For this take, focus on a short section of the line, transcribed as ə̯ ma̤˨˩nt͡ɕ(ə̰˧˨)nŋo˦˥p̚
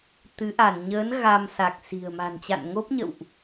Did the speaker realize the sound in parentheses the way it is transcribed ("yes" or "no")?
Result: no